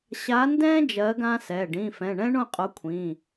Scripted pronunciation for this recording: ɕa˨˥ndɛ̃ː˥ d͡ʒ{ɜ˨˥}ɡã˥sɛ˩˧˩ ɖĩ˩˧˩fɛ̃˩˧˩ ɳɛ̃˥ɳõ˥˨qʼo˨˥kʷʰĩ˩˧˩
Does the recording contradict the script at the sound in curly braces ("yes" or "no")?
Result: no